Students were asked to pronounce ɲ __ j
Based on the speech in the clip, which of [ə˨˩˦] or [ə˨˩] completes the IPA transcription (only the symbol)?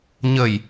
ə˨˩